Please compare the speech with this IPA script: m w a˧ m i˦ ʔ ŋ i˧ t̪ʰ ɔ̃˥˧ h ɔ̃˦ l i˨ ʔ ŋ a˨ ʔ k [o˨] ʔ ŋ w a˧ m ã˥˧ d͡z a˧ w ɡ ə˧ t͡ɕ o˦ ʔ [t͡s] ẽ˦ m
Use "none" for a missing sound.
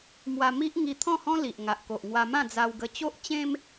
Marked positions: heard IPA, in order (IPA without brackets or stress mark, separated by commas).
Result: o˨, t͡ɕ